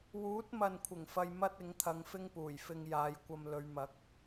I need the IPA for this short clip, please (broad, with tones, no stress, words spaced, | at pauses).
wuː˨˥t̚mɐ˨nkʷʰɪ˨˩ŋ fɐ˧j mɐ˥t̚ɪ˨˥ŋ t̪ʰɐ˧ŋfɪ˥ŋpuː˨˩jfɪ˧ŋ jaː˨˧jkʷɐ˧mlɵ˨˧ɥmɐ˨˥k̚